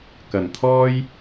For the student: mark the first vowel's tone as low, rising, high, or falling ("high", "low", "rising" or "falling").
low